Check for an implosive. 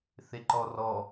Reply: absent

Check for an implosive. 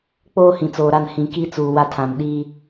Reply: present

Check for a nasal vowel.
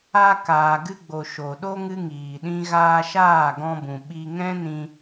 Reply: present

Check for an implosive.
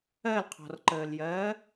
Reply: absent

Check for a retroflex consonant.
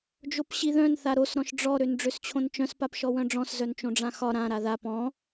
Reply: present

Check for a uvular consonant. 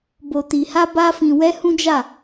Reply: absent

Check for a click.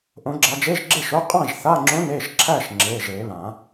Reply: present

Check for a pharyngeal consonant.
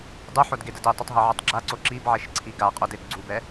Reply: present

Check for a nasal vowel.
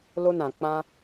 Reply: present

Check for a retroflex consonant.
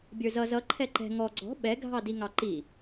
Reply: absent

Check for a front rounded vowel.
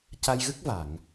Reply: absent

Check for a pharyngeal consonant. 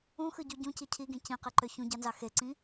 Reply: absent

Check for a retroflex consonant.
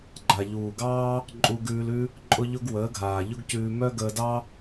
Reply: absent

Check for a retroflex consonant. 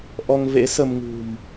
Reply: absent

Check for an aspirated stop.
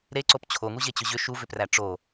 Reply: present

